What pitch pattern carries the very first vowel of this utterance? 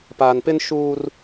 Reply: low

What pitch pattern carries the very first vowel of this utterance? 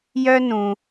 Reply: high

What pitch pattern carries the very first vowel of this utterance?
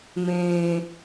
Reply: low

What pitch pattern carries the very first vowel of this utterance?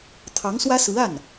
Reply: rising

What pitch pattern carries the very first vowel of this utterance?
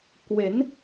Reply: rising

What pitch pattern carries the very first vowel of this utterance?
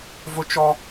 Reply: high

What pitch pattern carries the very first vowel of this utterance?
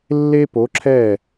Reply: high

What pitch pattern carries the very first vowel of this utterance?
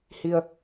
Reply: low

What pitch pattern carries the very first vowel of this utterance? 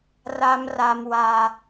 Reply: high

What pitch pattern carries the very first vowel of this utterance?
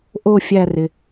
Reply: falling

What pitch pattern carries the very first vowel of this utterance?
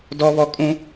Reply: high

